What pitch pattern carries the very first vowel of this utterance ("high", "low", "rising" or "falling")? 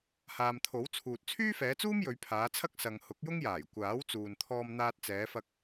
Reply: low